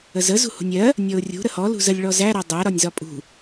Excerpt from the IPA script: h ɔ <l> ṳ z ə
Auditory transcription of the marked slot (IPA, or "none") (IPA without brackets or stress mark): l